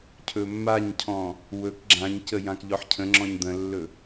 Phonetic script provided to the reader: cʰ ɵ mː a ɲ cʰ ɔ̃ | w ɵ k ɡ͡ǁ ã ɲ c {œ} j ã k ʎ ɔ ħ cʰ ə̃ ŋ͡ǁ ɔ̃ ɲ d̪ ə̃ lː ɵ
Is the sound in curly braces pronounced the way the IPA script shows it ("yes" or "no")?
no